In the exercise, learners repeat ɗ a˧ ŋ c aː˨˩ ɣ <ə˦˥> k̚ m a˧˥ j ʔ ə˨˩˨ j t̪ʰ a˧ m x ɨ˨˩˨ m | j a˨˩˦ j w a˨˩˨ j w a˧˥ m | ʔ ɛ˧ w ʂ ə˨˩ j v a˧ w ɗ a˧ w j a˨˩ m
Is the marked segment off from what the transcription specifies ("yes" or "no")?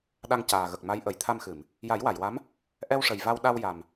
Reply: yes